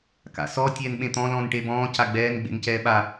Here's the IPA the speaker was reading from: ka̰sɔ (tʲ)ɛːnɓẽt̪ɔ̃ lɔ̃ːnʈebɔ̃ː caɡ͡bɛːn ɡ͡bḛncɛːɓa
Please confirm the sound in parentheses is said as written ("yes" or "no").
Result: yes